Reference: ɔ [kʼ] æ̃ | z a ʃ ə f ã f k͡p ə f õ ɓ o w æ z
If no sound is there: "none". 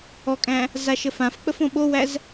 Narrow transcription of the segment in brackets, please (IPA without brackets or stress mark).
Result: kʼ